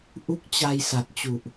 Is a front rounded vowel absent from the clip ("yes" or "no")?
yes